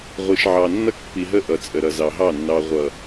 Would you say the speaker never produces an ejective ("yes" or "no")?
no